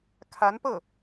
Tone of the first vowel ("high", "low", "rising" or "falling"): rising